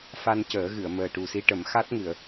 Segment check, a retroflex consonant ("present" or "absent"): present